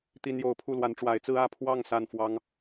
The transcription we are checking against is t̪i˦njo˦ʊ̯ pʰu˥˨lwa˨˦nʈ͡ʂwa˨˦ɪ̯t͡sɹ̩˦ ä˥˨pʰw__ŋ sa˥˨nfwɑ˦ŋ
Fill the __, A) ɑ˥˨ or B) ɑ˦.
A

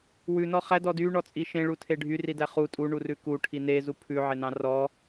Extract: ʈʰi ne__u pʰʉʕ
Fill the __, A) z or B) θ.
A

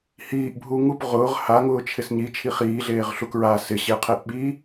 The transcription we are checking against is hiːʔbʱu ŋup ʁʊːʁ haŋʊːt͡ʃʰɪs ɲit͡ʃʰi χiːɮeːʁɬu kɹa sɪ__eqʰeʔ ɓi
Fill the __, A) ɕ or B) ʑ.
A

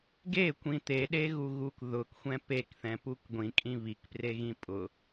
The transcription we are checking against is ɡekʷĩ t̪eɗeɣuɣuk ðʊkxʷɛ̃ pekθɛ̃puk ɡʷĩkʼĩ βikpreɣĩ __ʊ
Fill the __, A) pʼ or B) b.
A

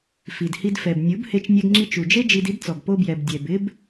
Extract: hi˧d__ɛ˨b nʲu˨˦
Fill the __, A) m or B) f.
B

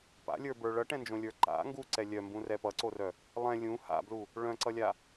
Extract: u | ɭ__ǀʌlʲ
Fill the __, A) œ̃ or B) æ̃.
A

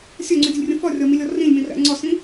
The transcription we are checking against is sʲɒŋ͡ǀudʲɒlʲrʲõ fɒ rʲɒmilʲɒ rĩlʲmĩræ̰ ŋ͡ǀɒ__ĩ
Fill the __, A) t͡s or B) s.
B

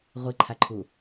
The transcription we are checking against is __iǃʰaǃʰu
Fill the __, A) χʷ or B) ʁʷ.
B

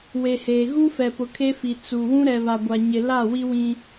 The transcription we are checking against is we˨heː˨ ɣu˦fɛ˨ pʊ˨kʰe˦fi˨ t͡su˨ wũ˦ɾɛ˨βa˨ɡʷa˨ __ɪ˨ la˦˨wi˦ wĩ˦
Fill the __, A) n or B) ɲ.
B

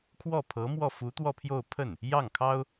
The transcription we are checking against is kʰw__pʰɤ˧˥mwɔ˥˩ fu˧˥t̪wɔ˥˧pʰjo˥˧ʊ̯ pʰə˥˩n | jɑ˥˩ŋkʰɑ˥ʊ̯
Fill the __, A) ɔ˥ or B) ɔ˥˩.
B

